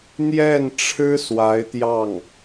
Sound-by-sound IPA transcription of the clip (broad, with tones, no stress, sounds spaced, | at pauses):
n̪ j ɛ˥˩ n ʈ͡ʂʰ ɻ̩˥ s w a˧˥ ɪ̯ t̪ j ɑ˥˩ ŋ